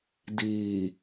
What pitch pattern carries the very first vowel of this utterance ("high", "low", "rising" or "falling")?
low